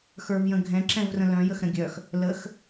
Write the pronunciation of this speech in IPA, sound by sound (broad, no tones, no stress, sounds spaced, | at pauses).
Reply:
x ə˞ v j ə̃ ɡʱ ɛ̃ ǁ ɛ̃ v r ə̃ l œ̃ j ə x ɾ ə̃ ɡʲ œ x | l ə x